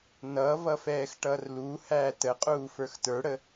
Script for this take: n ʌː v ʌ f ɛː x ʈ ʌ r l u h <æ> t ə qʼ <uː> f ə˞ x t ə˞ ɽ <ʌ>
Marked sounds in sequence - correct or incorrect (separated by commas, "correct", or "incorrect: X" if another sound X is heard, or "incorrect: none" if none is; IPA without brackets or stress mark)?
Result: correct, correct, incorrect: ə